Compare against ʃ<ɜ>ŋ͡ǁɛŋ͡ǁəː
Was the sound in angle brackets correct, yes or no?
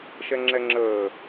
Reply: no